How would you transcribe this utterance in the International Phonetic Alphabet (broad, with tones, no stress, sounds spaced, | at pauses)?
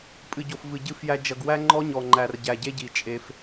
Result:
pʼ ɨ˨ ɟ o˨ f v ɨ˨ ɟ ɨ˦˨ f j æ˦ d͡ʒ ʌ˨ ɡ w æ˦ ŋ͡ǃ ɔ˦ ɲ ɔ˨ ŋ͡ǃ æ˨ r ɟ æ˨ ɟ e˦ ɟ i˨ t͡ʃʼ e˦ f